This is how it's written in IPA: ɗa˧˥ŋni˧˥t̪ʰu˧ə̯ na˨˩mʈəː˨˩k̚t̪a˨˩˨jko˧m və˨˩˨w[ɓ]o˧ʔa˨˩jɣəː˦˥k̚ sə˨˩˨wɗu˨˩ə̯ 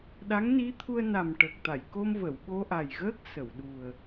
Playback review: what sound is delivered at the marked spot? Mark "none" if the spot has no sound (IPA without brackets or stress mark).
ɓ